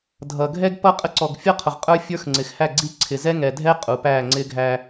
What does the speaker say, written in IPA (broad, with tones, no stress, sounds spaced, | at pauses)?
dʱ ʌ˨ ɡʱ ɛ˦ ɡ p ʌ˦ qʼ ə˦ ǀ ɔ˨ ɡ fʲ ʌ˦ qʰ ʊ˨ ʁ qʼ ə˞˦ fʲ ə˞˦ x ŋ͡ǀ ɪ˨ x h æ˦˨ ɡ͡ǀ i˦ ǀʰ ɪ˨ z ɛ˦ ŋ ɛ˨ dʱ ɛ˦ qʼ u˨ p æ˦˨ ŋ͡ǀ ɪ˦ ɡʱ æ˦